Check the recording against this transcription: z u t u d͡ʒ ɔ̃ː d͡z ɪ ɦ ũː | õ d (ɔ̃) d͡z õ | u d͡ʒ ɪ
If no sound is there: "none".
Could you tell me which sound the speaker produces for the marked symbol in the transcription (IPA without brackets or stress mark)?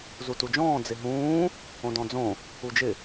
ɔ̃